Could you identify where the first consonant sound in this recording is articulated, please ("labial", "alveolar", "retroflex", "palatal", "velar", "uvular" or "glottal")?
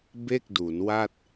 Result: labial